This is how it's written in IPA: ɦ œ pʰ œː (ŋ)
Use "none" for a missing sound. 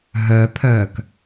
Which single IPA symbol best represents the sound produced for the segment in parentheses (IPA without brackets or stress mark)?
k